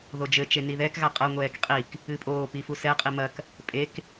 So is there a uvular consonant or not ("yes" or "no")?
yes